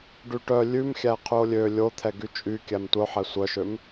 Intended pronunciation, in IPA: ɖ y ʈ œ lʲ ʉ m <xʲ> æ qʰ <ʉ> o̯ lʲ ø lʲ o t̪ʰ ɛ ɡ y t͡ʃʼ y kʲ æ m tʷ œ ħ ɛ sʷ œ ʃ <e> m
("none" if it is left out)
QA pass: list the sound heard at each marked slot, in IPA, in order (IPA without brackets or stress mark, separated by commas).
xʲ, ʉ, ø